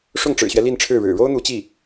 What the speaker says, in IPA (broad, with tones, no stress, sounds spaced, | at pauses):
ʂ ʊ˥˩ ŋ ʈ͡ʂ ɻ̩˨˩ ɕ ɥ ɛ˦ l i˥˧ n ʈ͡ʂʰ ɻ̩˥˩ ɻ ɻ̩˨˩ ɻ o˥ ʊ̯ n̪ u˧˥ t͡ɕ i˥˩